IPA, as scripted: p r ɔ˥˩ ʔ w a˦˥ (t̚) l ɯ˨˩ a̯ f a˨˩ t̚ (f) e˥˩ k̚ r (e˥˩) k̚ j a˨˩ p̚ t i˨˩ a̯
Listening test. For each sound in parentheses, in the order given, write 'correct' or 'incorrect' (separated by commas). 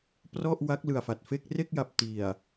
incorrect, correct, correct